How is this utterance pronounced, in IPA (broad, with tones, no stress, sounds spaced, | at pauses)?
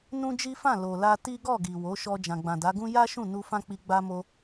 n ũ˦ d͡ʒ i˦ f ã˦˨ l o˨ l a˧ t i˦ ɡ ɔ˦˨ ɡ i˨ w o˨˦ ʃ ɔ˧ d͡ʒ ã˨ ɡ͡b ã˨ d a˨˦ ɡ ũ˦ j a˦ ʃ ũ˦˨ n u˧ f ã˦ k͡p i˧ ɡ͡b a˦ m o˦